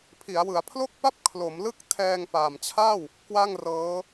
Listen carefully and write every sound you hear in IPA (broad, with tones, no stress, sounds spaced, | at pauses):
pʰ i˩˦ a̯ w ɯ˩˦ a̯ pʰ l o˥˩ k̚ p a˥˩ p̚ kʰ l o˩˦ m l ɯ˥˩ k̚ tʰ ɛː˧ ŋ p aː˨˩ m t͡ɕʰ aː˥˩ w | k w a˥˩ ŋ r ɤː˦˥